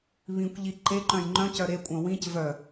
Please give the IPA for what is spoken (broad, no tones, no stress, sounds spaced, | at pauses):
β ĩ kʷ ʎ i ǃ e ǃ œ̃ j ŋ͡ǃ œ̃ c œ ɾ e kʷʼ œ̃ w ĩ c v œ